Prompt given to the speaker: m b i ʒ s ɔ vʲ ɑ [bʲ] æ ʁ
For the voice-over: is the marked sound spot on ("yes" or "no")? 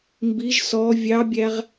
yes